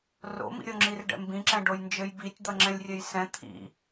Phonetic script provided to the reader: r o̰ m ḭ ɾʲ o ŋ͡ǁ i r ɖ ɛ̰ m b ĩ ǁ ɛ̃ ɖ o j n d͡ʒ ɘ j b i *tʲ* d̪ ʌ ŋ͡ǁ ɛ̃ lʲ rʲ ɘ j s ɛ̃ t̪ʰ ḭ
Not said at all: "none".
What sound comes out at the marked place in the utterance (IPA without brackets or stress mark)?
tʲ